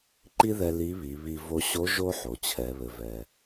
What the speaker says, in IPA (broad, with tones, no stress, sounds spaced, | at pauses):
ǃ i˥ ð ɛ˧ l i˧˥ β i˩˧ β i˧ v o˧ ɕ o˧˥ ʒ o˥ ħ o˩ t͡ɕʰ ɛ˩˧ β ɘ˩ v ɛ˩